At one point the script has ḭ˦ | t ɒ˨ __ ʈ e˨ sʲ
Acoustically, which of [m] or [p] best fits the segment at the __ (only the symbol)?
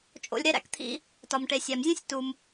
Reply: m